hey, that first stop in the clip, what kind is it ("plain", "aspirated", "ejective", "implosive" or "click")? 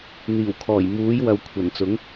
aspirated